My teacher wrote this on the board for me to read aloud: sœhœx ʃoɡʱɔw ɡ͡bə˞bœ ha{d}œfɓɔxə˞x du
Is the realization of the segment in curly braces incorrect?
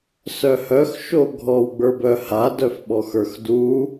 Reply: no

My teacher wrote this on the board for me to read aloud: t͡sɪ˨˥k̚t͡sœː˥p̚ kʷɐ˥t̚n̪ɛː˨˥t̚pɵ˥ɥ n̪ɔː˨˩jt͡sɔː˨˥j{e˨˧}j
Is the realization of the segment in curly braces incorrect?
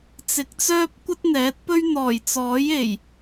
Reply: yes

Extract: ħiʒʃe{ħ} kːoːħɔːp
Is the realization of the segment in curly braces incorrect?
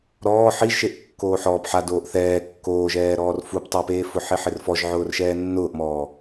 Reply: yes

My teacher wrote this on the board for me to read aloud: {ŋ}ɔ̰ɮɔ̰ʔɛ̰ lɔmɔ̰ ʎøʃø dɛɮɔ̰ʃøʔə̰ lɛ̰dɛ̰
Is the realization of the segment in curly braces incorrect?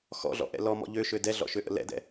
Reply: yes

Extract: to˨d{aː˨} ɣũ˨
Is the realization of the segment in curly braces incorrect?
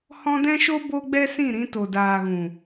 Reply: no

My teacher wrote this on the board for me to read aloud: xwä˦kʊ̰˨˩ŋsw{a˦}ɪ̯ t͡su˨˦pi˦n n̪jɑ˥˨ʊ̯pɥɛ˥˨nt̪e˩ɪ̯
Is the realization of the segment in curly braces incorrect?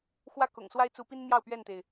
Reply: no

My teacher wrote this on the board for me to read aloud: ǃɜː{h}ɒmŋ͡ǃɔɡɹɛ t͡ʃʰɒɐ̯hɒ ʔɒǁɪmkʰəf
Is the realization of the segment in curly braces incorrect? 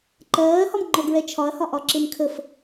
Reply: no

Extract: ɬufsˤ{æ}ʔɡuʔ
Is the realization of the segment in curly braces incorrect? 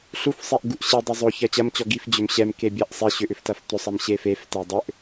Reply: yes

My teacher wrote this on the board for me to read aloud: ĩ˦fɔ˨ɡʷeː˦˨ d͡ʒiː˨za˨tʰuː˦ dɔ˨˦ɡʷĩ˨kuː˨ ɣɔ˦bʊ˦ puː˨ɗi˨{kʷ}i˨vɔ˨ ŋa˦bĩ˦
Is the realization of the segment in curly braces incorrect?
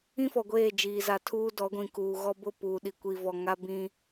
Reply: no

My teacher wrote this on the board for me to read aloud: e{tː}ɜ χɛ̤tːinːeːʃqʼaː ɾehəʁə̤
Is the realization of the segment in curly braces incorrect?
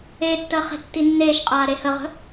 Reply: no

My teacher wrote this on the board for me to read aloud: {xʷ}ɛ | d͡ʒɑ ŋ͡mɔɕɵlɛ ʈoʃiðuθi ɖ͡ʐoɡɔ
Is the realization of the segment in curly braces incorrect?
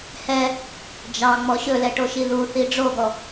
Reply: yes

